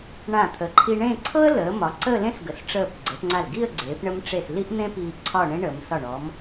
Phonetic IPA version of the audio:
ɳ ã˧˩ t̪ʰ ə˩˧ ǃʰ i˧ ɳ ẽ˥˧ ǀʰ ɤ˥ ə̯ l əː˩˧ m ɒ˩˧ ǀ əː˥˧ l ẽ˥ s ɡ ə˩˧ s ʈ͡ʂ əː˧˩ p ɡ͡ǀ ə˩˧ p ŋ͡ǀ a˧˩ l ɡ i˥˧ ə̯ ɡ͡ǀ eː˩˧ p ɳ ə˧ m ʈ͡ʂ e˧˩ s l i˥ ʔ n̪ ẽ˥ p iː˧ ǀʰ ɒ˥˧ ɳ ẽ˥ ɳ ə˩˧ m s ɒ˧˩ ɳ ɔ˩˧ m

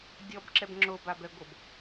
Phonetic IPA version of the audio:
dʲ ɔ b ǁ ɛ b ŋ͡ǁ o b a b ɛ ɡʷ ɤ b

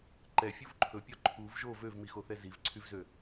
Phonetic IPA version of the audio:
ǃ ɛ fʲ u v ǃʰ ɵ pʲ ɔ ǃʰ u v ʒ o v ø v m i x o θ ɛ z i v ǀʰ y v z ø

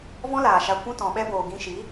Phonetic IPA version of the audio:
v ɔ̃˦ l aː˨ ʃ a˧ kʷ ũ˦ t ɔ̃˨ ɓ ɛ˦ b oː˨ ɡ ĩ˧ ʃ i˨˦

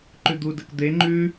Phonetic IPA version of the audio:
ǃ ʉ d̪ u d ə k d̪ e ŋ͡ǃ ʉ

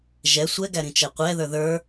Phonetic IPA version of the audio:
ʒ ɛ sʷ ɛ ɡ æ ɾ ĩ t͡ʃ ɛ qʷ ɛ ð ə˞ ð ə˞

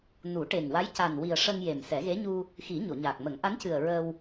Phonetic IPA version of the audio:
n u˨˩˦ ʈ e˨˩ ŋ w a˧˥ j c a˨˩ n w i˨˩ ə̯ ʂ ə˧ ŋ j e˨˩ m s ɛ˨˩˦ ɣ e˧˥ ɲ u˧ | x i˨˩˦ ɲ o˨˩˨ ɲ aː˨˩ k̚ m ə˨˩˦ ŋ ʔ a˧˥ n c ɨ˨˩ ə̯ ɹ ə˧ w

